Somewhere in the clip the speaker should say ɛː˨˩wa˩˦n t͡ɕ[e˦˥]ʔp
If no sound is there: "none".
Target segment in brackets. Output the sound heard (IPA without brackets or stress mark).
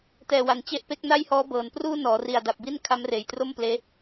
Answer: e˦˥